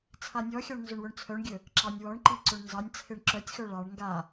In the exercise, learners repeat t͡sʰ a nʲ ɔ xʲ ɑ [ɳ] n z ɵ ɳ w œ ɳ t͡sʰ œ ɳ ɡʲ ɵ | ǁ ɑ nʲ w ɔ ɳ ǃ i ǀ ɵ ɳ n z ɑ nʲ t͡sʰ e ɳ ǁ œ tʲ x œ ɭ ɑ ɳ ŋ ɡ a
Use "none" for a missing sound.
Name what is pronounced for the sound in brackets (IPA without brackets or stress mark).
ɳ